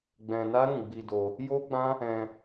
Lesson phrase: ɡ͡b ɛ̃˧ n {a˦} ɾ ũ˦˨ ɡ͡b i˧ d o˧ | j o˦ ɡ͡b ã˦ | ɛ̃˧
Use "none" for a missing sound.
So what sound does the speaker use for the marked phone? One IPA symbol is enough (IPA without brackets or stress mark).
a˦